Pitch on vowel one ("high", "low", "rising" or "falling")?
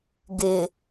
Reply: low